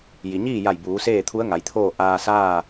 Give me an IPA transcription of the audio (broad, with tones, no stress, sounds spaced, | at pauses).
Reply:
j i˩ ɲ iː˥˨ j a˧˩ j b uː˩˧ s eː˥˨ t̪ʰ u˧˥ ə̯ ŋ a˩˧ j t̪ʰ oː˥˨ ʔ aː˧ s aː˥˨